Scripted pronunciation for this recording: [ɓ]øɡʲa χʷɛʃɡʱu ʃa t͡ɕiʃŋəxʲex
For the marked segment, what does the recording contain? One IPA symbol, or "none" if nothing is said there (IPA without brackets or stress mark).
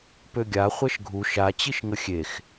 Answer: p